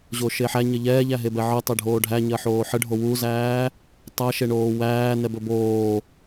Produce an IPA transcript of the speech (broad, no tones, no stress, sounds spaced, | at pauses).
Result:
ʑ o ʃ e ħ æ ɲ ɘ ʎ ɛː ʎ æ ɦ e b ɛ ʕ ɘ tˤ e ɖʱ oː ɖʱ æ ɲ ɜ ħ oː ħ ɘ ɖʱ o w u z æː | tˤ æ ʃ e ɳ oː w æː n ɛ b ɵ b oː